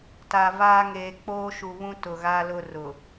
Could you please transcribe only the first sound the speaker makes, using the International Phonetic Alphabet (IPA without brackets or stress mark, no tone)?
t